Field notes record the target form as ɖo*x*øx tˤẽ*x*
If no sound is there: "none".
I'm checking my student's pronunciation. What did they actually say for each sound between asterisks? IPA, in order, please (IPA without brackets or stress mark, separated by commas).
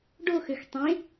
x, none